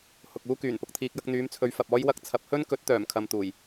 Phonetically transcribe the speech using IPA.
hʊ˨k̚uː˥kyː˨˩n pʊ˨k̚t̪ʰiː˨k̚jɐ˧k̚ n̪yː˨˧mt͡sʰɵ˨˧ɥ fɐ˨p̚ɔː˥jwɐ˥k̚ t͡sʰɐ˨˥p̚hɵ˥n kɵ˨˥t̚ t̪œː˨˩mkʰɐ˨m t̪uː˨˩j

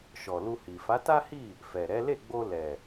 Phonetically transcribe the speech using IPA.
ʃɔ˨lu˧hi˨ fa˨˦ta˦hi˦˨ | fɛ˨ɾɛ˨˦ le˦˨ɡ͡bo˧ lɛ˨

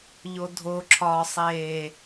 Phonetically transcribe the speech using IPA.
ʎodʱoǁʰɒːsˤeː

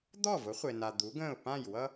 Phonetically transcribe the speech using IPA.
d̪ɔ˥˩vʊ˩˥χʷe˩na˩ d̪u˩˥ɡə̃ː˥˩ʊ̯ pã˥˩j wʌ˥

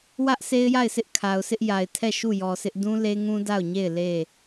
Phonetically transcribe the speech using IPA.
wä˦ʔ sʰe˦ɪ̯ja˦˨ɪ̯sʰɪ˦ʔ kʰa˨ʊ̯sʰɪ˦ʔja˨ɪ̯tʰɛ˦˨ ʃu˦˨jɔ˨sɪ˦ʔ dũ˦ le˦ŋũ˦ da˦˨ʊ̯ɲe˦˨ɪ̯ le˦˨

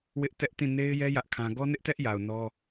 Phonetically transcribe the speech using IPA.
wɪ˦ʔ tɛ˦ʔtĩ˦˨ ne˦ɪ̯jɛ˦ jä˦ʔkʰã˦ ɡɔ˦nɪ˦ʔtɛ˦ʔja˨ʊ̯ nɔ˦

